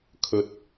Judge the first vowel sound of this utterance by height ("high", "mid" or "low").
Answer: mid